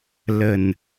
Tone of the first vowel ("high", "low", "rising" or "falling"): low